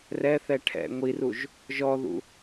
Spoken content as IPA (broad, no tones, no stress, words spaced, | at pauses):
rɛθɛ ʈʰɛ̰ ŋʷiruʒ | ʒɔðṵ